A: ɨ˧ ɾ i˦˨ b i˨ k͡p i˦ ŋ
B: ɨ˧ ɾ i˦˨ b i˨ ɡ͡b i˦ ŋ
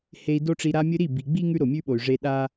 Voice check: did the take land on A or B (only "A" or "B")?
B